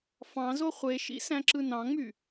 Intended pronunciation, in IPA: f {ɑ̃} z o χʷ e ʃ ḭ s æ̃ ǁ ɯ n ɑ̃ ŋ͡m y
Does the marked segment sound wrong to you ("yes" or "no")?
no